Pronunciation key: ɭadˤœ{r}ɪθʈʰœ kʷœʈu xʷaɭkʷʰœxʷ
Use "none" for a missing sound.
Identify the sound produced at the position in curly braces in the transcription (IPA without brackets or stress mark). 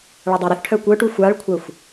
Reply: ɾ